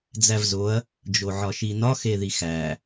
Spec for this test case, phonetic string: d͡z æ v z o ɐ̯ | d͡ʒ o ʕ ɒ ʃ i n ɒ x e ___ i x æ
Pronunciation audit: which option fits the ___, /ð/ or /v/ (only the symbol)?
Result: ð